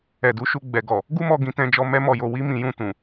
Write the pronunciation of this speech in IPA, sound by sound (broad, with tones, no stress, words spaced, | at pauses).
ɛ˨du˨˦ʃu˧ ɡ͡bɛ˨ɡɔ˨ | ɡu˦mɔ˧ ɡĩ˧tɛ̃˧d͡ʒɔ˧ mɛ˦mɔ˦˨jo˧ wi˦mĩ˧jũ˧ tũ˨